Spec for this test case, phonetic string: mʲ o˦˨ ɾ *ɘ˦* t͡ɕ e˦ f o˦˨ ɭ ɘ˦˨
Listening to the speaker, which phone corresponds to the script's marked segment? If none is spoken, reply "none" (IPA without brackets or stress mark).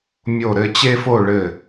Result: ɘ˦